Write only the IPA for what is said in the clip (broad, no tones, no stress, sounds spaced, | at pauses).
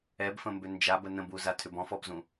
ɛ b f ə̃ m b ʏ n d͡ʒ a b ə n ə̃ b u z a tʰ ʏ b ɔ̃ f ɔ b z ũ